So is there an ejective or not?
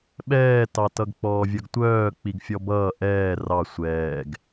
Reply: no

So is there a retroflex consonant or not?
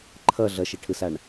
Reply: yes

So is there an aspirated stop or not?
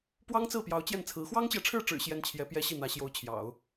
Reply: yes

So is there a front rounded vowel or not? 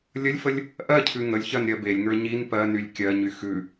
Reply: yes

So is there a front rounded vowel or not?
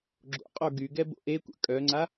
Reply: yes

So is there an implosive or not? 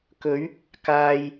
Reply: no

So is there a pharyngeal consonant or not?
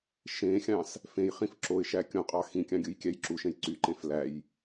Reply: no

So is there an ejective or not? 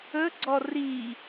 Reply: no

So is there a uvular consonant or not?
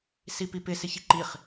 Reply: yes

